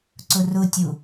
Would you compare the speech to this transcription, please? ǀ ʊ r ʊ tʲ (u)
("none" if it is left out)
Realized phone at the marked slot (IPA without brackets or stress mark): u